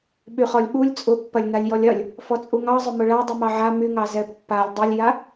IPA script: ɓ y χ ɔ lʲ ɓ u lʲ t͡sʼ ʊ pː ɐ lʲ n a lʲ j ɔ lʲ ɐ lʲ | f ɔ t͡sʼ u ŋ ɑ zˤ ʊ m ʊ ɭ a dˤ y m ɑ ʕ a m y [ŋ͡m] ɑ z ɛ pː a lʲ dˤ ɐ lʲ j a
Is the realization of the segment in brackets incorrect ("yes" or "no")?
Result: yes